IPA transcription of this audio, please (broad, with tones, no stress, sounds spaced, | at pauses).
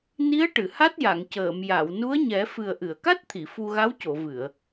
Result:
n i˧˥ ə̯ ʈ ɨ˨˩˨ h a˦˥ t̚ j a˨˩˨ ŋ c əː˨˩˨ m j a˨˩˨ w n u˧˥ ə̯ ɲ ɛ˨˩˦ f ɨ˨˩ ə̯ ʔ ɨ˨˩˨ ə̯ k a˦˥ t̚ t̪ʰ i˨˩˨ f u˧ ɣ a˧˥ w c o˨˩˨ v ɨ˨˩˨ ə̯